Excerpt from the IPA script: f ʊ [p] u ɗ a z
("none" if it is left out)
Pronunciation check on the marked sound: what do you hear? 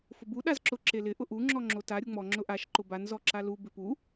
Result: b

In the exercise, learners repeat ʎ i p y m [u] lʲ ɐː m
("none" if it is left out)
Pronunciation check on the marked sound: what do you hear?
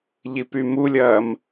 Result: u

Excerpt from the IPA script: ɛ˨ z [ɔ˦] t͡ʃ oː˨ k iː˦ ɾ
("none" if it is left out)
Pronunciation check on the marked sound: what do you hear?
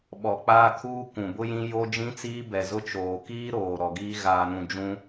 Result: ʊ˦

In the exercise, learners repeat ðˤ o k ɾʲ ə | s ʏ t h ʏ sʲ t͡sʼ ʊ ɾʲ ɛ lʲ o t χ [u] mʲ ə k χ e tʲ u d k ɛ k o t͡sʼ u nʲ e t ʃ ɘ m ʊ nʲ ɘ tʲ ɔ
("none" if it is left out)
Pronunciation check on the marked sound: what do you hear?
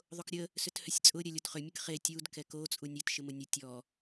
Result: ʏ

